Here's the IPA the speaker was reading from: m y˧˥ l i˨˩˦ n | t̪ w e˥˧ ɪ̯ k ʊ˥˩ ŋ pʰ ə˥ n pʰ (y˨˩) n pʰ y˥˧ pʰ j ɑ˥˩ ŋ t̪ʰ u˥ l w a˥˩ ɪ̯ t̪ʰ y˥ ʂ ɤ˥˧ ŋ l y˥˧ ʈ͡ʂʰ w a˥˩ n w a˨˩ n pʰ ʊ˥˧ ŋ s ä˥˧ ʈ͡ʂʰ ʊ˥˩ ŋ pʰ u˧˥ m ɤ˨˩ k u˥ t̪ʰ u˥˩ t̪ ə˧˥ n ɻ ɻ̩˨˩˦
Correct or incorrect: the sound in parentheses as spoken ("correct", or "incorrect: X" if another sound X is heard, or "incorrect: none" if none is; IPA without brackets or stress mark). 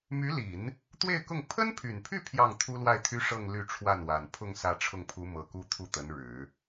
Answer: correct